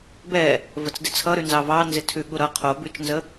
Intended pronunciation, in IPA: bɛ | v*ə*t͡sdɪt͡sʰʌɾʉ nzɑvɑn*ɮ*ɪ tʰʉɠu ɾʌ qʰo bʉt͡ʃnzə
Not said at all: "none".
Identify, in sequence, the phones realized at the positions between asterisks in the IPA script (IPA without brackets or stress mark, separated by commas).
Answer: ə, z